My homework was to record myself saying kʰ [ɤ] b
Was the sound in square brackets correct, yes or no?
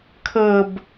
yes